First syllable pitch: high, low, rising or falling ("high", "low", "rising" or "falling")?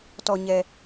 low